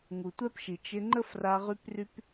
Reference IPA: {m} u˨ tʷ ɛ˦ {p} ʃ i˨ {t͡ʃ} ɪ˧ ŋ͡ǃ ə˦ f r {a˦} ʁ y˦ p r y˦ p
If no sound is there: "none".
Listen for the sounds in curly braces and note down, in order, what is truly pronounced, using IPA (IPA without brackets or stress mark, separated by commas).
ŋ, p, t͡ʃ, a˧